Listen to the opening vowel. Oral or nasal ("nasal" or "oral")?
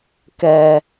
oral